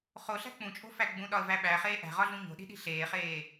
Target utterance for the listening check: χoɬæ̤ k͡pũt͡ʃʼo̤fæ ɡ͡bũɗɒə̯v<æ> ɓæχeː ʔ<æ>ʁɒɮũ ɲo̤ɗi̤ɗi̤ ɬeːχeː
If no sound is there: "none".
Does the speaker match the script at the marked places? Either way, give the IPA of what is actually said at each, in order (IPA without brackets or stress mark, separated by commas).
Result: æ, æ̤